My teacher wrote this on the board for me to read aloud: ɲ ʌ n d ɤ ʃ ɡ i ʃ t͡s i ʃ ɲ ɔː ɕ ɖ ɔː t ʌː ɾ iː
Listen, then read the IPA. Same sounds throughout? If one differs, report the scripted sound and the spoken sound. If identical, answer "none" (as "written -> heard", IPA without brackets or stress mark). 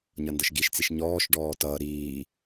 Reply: ɕ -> ʃ